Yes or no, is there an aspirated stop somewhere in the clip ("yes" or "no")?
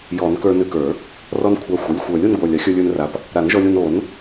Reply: yes